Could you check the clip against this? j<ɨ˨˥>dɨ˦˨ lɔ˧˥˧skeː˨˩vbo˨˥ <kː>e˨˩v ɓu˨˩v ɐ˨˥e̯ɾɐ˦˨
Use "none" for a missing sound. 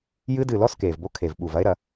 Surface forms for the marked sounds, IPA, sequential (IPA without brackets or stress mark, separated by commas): ɨ˦˥, kʰ